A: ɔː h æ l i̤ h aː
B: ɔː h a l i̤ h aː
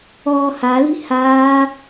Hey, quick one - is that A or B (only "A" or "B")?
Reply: B